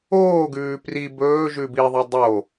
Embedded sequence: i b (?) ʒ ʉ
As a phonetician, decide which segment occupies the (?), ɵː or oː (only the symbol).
ɵː